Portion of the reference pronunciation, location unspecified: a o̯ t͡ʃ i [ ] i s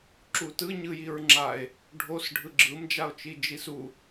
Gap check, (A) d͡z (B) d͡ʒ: B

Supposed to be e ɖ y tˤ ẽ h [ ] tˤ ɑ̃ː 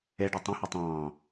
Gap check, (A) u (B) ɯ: A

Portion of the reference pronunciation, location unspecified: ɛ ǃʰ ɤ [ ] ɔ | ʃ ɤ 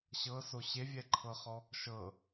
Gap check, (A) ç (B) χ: B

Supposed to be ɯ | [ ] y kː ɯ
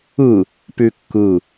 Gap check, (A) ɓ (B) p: B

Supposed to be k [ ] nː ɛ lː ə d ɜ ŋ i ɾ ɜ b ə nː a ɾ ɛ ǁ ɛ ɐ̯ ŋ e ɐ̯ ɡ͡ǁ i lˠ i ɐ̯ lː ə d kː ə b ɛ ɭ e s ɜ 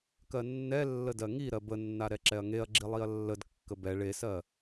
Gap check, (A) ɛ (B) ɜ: B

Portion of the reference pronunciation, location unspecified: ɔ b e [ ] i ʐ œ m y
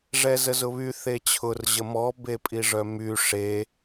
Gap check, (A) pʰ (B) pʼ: B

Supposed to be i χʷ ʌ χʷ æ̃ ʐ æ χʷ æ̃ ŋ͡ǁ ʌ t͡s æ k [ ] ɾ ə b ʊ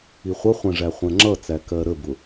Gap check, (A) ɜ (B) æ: A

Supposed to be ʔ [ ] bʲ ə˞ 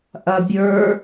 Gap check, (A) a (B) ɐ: B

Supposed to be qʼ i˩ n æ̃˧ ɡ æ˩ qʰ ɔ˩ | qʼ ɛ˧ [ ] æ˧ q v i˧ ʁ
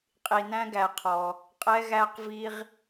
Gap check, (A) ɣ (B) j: A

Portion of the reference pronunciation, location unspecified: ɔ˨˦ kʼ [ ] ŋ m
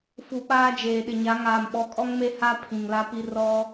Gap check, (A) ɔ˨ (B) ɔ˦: B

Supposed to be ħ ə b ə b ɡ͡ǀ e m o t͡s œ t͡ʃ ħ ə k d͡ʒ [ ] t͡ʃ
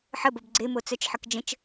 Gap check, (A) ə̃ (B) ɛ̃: A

